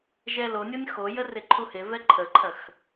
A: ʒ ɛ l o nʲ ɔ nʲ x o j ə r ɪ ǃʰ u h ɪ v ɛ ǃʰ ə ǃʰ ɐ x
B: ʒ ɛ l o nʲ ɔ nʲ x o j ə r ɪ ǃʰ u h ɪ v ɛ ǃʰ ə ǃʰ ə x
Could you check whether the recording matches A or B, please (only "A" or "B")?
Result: A